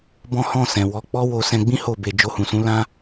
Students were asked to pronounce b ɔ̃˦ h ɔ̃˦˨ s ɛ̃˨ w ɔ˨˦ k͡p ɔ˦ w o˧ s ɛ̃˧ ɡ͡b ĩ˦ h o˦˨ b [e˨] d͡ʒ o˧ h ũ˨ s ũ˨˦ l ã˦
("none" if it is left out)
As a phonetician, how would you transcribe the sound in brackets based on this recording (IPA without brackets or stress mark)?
e˨